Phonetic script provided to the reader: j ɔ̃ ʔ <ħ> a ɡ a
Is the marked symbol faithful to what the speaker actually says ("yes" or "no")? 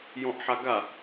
yes